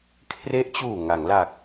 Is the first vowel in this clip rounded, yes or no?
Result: no